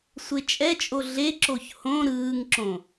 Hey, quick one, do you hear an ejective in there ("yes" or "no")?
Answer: yes